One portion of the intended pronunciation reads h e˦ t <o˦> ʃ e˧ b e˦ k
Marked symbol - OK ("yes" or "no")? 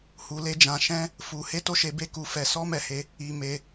yes